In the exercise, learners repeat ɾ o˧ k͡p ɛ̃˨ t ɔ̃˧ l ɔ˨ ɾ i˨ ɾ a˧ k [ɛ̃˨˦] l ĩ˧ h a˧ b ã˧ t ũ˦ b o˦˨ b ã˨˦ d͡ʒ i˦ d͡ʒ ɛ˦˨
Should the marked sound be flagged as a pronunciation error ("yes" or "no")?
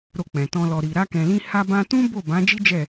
yes